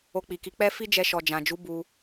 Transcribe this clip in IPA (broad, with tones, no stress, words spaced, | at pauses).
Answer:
o˧k͡pi˨ki˨˦ k͡pɛ˦ fi˦d͡ʒɛ˧ ʃɔ˨d͡ʒã˨d͡ʒu˨˦ bu˧